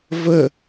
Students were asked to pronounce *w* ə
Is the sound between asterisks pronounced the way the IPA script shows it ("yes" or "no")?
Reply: no